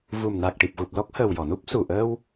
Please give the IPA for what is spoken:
v u˨˩ m n a˨˩ k̚ ʈ i˨˩ p̚ ɣ u˨˩ p̚ l ɔ˦˥ k̚ h əː˨˩ w j ɔ˨˩˨ n u˦˥ p̚ s u˨˩ ʔ əː˧ w

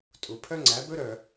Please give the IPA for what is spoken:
tʼ u˨ pʰ œ˦ ŋ͡ǀ æ˨˦ b ɵ˦ ɾ œ˨

